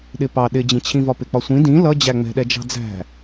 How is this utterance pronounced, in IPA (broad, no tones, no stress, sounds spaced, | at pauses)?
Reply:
ɗ ɪ p ɑ ɗ ɪ d͡ʑ ĩ t͡ɕʰ ĩ v ɒ p ɪ k͡p ɒ sʷ ĩ d ĩ l ʌ d͡ʑ æ ŋ͡m ɛ̤ ɗ ɛ d͡ʒ ɑ̤ d͡z æ̤